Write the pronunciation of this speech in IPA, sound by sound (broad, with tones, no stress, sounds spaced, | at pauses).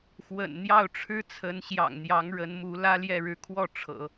x w ə̰˨˩ n n̪ j ɑ˥˩ ʊ̯ ʈ͡ʂʰ ɻ̩˥ t͡sʰ ə˧˥ n ɕ j ɑ̰˨˩ ŋ n̪ j ɑ˧˥ ŋ ɻ ə˧˥ n m u˧˥ l ä˥ l j ɛ˥˧ ɻ ɻ̩˥˧ kʰ w ɔ˥˩ ʈ͡ʂʰ ɤ̰˨˩˦